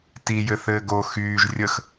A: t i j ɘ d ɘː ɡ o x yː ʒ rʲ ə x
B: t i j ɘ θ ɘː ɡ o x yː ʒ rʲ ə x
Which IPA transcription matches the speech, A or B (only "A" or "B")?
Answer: B